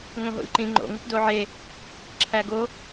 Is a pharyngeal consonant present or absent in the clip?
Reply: present